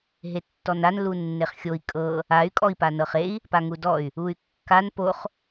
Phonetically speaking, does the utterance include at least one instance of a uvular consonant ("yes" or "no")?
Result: yes